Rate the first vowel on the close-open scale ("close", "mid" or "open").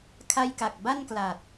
open